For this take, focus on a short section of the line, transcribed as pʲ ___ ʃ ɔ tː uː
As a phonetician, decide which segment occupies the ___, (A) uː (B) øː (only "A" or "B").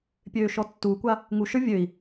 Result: B